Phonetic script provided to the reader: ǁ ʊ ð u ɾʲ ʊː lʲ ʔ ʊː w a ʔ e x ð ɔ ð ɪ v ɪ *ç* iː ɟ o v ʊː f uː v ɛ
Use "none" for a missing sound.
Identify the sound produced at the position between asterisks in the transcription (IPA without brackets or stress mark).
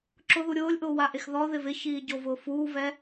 ç